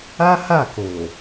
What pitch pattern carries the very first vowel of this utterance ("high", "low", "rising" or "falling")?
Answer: high